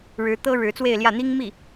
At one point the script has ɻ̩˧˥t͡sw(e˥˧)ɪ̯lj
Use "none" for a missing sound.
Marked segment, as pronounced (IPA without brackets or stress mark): e˥˧